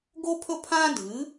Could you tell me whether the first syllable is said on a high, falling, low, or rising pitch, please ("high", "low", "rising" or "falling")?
high